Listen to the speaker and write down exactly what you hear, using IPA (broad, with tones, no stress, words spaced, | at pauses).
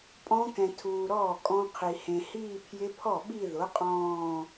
pʼɔ̃˦˥kɛ̃˨tʰuː˨ ɾɔː˥˩kʼɔ̃˦˥qʰi˨ hẽ˨hiː˥˧pʰjɪ˦˥ pʰɔ˥˩ɓi˥˧ðʊ˨˥ qʼɔ̃ː˥˧